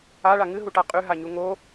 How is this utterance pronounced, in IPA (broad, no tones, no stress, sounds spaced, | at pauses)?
a ɭ a ŋ ɨ ɦ u ʈ a qʼ ʉ ɦ a ɲ u ŋ o